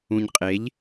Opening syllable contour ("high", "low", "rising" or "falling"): low